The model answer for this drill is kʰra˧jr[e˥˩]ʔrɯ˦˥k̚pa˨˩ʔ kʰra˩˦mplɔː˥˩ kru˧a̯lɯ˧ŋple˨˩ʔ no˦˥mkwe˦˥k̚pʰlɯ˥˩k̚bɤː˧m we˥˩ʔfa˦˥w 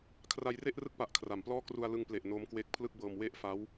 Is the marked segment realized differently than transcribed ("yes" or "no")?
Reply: no